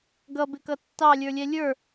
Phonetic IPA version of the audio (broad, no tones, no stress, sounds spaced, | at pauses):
ɡ ʌ b ɪ k ʌ tː ɑ lʲ ə˞ lʲ ɛ lʲ ə˞